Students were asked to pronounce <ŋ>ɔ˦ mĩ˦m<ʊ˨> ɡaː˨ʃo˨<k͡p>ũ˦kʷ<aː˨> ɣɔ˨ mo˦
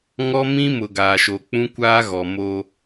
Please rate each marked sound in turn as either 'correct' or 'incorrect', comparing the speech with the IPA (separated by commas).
correct, correct, correct, incorrect